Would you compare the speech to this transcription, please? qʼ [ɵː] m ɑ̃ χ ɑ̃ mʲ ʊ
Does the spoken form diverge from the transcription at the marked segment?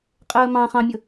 yes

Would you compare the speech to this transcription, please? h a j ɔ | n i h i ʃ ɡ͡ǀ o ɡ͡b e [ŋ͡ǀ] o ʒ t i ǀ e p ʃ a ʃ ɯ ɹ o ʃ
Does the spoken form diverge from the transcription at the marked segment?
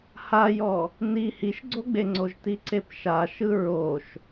no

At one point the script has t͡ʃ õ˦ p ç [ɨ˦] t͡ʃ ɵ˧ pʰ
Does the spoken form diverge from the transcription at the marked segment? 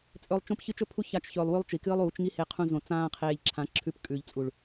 no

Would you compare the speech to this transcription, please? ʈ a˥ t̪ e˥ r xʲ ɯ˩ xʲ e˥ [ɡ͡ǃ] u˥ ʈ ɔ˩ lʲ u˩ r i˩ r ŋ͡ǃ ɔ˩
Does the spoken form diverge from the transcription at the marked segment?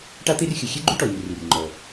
no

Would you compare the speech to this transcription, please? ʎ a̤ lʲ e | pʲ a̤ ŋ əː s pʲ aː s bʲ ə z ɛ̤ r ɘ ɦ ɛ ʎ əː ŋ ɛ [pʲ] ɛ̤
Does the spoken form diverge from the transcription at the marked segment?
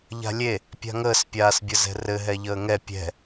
no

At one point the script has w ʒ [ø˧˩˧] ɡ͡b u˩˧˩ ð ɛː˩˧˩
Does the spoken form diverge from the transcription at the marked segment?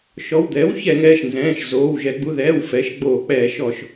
yes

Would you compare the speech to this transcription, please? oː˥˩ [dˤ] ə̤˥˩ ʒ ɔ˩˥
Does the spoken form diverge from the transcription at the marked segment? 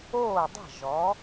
no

